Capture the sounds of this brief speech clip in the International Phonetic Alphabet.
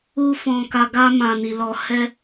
u˦ f ɔ̃˧ k a˧ ɡ a˧ m ã˨ n i˨ l ɔ˨ h ɛ˧

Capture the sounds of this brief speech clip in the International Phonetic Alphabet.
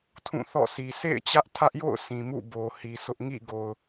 tʰ ũ˦˨ θ ɔ̰˦˨ s i˨ sʰ ḛ˦˨ ɪ̯ t͡ɕ ä˦ ʔ tʰ ä˦ ʔ j o̰˦˨ ʊ̯ sʰ ĩ˨ m ṵ˦˨ b o˨ h i˨ sʰ ʊ˦ ʔ ŋ ḭ˦˨ ɡ o˨ ʊ̯

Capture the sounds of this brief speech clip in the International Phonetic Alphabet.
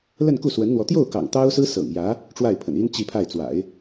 l ə˥˧ n k u˥˩ s w ə˧˥ n n̪ w ɔ˧˥ t̪ j o˥˩ ʊ̯ k ɑ̰˨˩ ŋ t̪ ɑ˥ ʊ̯ s ɹ̩˥ s ɤ̰˨˩ ŋ j ä˧˥ | ʈ͡ʂ w a˥˩ ɪ̯ pʰ ə̰˨˩ n i˥ n t͡ɕ i˥˧ pʰ a˥˩ ɪ̯ t͡s w a̰˨˩˦ ɪ̯

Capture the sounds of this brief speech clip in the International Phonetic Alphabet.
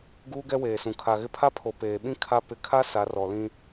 ɡ uː˦ ɡ ɛ˦ w eː˨ s ũ˨ kʰ a˨ ɣ ɪ˦ pʰ a˦ pʰ o˨ p eː˨ ɓ ĩ˦ kʰ a˦ p ɪ˨˦ kʰ a˦ s a˨˦ r ɔ˨ l ĩ˦

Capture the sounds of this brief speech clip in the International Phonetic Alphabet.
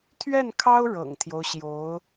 t̪ʰ ɥ ɛ˥˩ n kʰ ɑ˥ ʊ̯ ɻ ɤ̰˨˩ ŋ t̪ʰ j o˦ ʊ̯ ɕ j o˧˥ ʊ̯

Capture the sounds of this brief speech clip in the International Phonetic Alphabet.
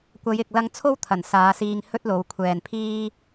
kʷ ɐ˨˧ j ɪ˨ k̚ l ɐ˧ ŋ t͡sʰ o˥ w t̪ʰ ɐ˨˩ n s aː˨˧ s iː˧ ŋ h ɵ˥ t̚ l o˨˧ w kʷʰ ɛː˨ n pʰ iː˥

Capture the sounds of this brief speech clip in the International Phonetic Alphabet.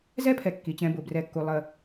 z ɛ˦ pʰ ɛ˨ kː i˨ t͡ɕ ɛ̃˧ b ʊ˨ b r ɛ˧ kː u˧ lˠ ə˧

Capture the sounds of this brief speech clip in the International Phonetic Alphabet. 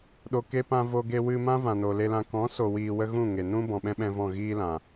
ɗ o˨ k e˧ p ã˧ v o˧ ɡ e˧ w ɨ˧ m ã˦ v ã˨ n o˨ l e˧ l ã˧ k ɔ̃˨˦ s o˨ w iː˨ w ə˧ ɣ ũ˦˨ ŋ e˨ n ũ˦ b ɔ̃˨ ɓ ɛ̃˦ ɓ ɛ̃˧ v ɔ̃˦˨ ɣ iː˦ l ã˨

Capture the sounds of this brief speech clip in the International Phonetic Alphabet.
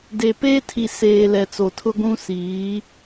d e˨ p eː˦ tʰ i˨ s eː˨ l ɛ˨ t͡s o˨ tʰ ʊ˦ ɡʷ ũ˦ s iː˨˦

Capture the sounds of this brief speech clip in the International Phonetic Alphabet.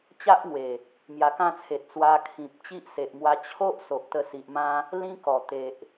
t͡ɕ a˦ ʔ ŋ w e˨˩ | m j a˧ k ã˥˧ t͡sʰ e˨ t̚ t͡s w a˧ kʰ ĩ˨ p̚ t͡ɕ i˦ ʔ s e˨ ʔ m w a˧ t͡ɕʰ o˦ ʔ s o˨ ʔ t̪ ə˧ s i˨ ʔ m ã˦ | l ĩ˦ k ɔ˨˩ t̪ e˨ ʔ

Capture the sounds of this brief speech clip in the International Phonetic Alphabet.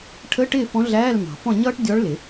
ʈʰ ə˧˥˧ ʈ ɪː˥˨ f ɔ̃˧˥ ɮ æː˧˥˧ l m ɑ̤˨˩˦ f ɔ̃˥˨ ɲ ʌː˥ ʈ dʲ ɔ˧˥ ɭ l ɪ˨˩˦

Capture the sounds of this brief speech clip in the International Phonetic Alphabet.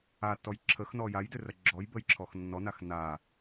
a tː ɔ j ǁʰ ə x n ɔ j a j d ʏ r ɐ ɡ͡ǁ ɔ j b ə j ǁʰ ɔ x nː ɔ n a x n a

